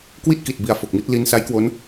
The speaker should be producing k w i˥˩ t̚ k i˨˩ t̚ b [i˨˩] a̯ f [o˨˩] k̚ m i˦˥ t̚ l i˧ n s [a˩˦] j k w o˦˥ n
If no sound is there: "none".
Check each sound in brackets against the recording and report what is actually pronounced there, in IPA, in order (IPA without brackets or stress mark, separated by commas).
i˨˩, o˨˩, a˦˥